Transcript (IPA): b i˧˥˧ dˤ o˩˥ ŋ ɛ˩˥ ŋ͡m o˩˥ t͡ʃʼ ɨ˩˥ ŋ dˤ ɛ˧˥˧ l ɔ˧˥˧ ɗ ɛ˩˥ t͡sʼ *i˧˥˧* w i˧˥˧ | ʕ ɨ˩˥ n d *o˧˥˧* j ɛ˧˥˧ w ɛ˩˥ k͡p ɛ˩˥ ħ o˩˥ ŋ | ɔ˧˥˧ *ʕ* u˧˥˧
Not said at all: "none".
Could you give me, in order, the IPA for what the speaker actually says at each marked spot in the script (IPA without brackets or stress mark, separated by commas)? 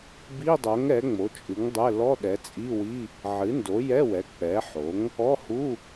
i˧˥˧, o˩˥, h